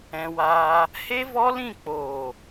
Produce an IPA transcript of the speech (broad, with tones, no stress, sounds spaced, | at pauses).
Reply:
ɛ̃˧ w aː˧ | h e˦ v ɔ˦ l ĩ˦˨ k͡p oː˨